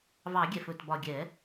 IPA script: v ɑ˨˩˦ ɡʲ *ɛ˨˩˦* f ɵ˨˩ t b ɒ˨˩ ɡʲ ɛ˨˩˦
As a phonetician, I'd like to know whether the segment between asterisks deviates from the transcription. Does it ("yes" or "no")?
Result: yes